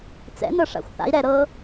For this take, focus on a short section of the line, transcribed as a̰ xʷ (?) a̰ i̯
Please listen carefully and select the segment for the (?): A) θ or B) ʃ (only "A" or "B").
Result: A